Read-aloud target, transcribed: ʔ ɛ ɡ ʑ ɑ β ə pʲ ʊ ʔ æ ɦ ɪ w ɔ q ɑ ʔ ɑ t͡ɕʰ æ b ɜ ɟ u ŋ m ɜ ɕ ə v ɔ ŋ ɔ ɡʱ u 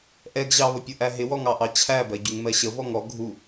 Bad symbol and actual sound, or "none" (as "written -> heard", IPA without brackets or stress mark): q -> ŋ